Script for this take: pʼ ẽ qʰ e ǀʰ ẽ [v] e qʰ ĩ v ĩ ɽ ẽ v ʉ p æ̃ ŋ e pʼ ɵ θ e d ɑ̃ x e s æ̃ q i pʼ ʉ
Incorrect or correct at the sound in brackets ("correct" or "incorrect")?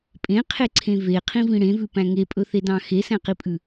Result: correct